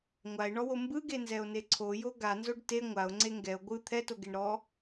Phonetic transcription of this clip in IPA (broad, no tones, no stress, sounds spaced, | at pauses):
ŋʷ a e̯ ɳ ɔ w o m b ɯ ɡ e n z ɛ o̯ n e ǀʰ o j o ɡ a n z o ɖ t e ŋʷ a o̯ ŋ͡ǀ e ŋ ɡ ɛ o̯ ɡʷ ɯ t̪ʰ ɛ t o ɡ e ɳ ɾ ɔ